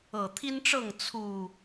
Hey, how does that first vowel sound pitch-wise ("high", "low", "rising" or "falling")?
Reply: low